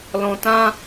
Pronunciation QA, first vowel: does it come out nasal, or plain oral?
nasal